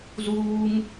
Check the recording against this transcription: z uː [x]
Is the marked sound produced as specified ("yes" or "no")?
no